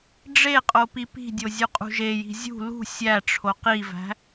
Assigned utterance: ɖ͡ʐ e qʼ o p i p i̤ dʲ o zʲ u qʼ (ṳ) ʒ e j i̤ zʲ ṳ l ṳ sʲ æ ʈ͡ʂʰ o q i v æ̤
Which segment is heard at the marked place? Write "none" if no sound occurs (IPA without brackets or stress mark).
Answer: ṳ